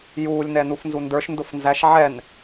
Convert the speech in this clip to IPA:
j uː lʲ n ɛ n u f n z u n d ə˞ ʃ n d ʊ f n z æ ʃ ʕ ɛ n

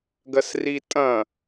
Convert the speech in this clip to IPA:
ɡ ɐ s r i tʼ ɐ̃

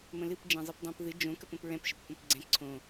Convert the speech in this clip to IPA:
m ə̃ l ɨ p d͡ʒ ɛ̃ zˤ ɨ p dˤ õ p ð ɨ d͡ʒ õ k ə p ə̃ p ɹ ɛ̃ p ʃ ə p o p õ p ɡ͡ǀ ɛ̃ ǀʰ õ

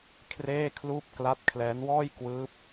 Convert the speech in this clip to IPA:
kʰ r eː˥˩ kʰ l uː˥˩ p̚ k l a˦˥ t̚ kʰ l ɛː˦˥ n w ɔː˥˩ j k w ɯː˦˥ p̚

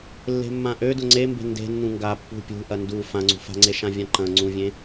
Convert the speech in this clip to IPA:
lː e̤ mː ã ʔ ø d ʊ ŋ͡ǀ e m b e̤ n d e̤ nː ũ ŋ ɡ a pː ṳ pʲ ṳ ʔ ɐ n d u f ã ŋ͡ǀ ṳ f a̤ ŋ͡ǀ e ʃ ã vʲ ã ǃ ɐ̃ ŋ͡ǀ ũ vʲ ẽ

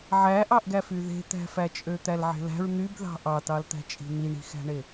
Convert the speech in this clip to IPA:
ʕ æ ʔ ɑ ʔ ɡ æ f y ð e̤ t̪ æ̤ f æ t͡ʃʼ ø t̪ æ l ʕ e̤ l æ̤ ɹ n̪ y b ð ɑ̤ ʔ ɑ t ɑ l t̪ æ̤ t͡ʃʼ i̤ n̪ i ɳ i̤ x æ̤ ɳ e

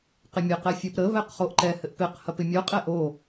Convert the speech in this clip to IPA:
q ɪ mʲ ɘ q ɛ fʲ ə˞ p ɾ ə β ɛ q χ o ʔ ǃ ɛ h ɘ ʔ p ɪ q h ɐ p ɪ mʲ o qʼ ɛ ʔ o

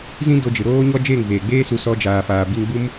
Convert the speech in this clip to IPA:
z ĩ˦ d o˧ d͡ʒ ɨ˨ ɾ oː˦ ɲ ɔ˦ d͡ʒ eː˦˨ ŋ v eː˨ ɡ͡b eː˦ s u˧ s ɔ˦ d͡ʒ aː˨ f aː˨ b i˧ ŋ ɡ͡b u˦ m

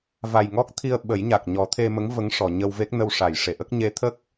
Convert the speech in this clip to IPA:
v a˨˩ j ŋ ɔ˦˥ k̚ t̪ʰ i˧ ə̯ ɓ ə˨˩˦ j ɲ a˨˩ k̚ ɲ ɔ˨˩˦ t̪ʰ e˧ m ə˧˥ ŋ v ə˧˥ ŋ ʂ ɔ˨˩˨ ɲ ə˧ w v e˦˥ k̚ n ə˧ w ʂ a˨˩˨ j ʂ e˨˩˨ ʔ ə˦˥ k̚ ɲ e˧˥ t̪ʰ ə˦˥ k̚

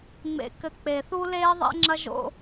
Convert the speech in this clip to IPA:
ŋ͡m ḛ˨ k ɘ˨ k͡p e˨ θ u˦ l eː˦ ðˤ ɛ̰˦ ŋ͡ǁ ɐ˦ ʒ o̰˦

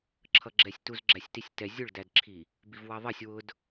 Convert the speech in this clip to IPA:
ǁʰ ʌ ɡ͡ǁ ɛ sʲ t u z ɡ͡ǁ æ sʲ t i sʲ t ɛ zʲ ʊ ɭ d æ d ǁʰ i | b i v w ɑ ðˤ ʌ sʲ w ʊ d

